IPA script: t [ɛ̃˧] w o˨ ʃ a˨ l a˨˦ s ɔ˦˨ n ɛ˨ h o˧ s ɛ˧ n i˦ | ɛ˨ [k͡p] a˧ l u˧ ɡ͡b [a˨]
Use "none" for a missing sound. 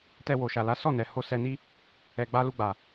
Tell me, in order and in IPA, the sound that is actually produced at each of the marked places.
ɛ˧, ɡ͡b, a˨

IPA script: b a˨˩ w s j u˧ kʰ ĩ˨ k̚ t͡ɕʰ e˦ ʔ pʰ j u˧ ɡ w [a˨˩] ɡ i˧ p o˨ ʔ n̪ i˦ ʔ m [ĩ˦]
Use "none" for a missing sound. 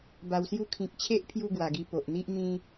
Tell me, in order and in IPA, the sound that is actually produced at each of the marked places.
a˨˩, ĩ˦

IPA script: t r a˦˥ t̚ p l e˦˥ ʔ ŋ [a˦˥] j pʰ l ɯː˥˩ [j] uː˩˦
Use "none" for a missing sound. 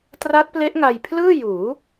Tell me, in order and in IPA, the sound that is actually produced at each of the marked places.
a˧, j

